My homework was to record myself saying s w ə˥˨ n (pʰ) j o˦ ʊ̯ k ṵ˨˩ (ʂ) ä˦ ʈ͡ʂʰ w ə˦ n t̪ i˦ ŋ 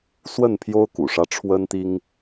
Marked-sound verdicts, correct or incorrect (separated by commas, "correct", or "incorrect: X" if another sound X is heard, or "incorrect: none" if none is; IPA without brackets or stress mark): correct, correct